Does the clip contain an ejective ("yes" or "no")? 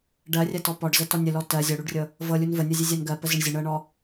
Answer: no